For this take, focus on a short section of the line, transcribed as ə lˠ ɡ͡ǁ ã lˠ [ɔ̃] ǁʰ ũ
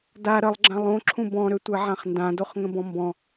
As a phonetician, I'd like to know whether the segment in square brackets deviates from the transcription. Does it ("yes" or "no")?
yes